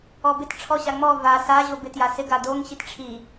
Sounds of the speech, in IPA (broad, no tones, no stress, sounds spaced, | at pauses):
ɔ b ɪ t ʈ͡ʂʰ ɔ ɕ a ŋ͡m ɔ v a s a ʑ o b ɪ t j a s ɪ ɡ a d o ŋ ɕ i t ʈ͡ʂʰ i